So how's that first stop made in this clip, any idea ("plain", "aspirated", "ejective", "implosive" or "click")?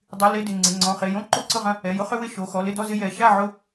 plain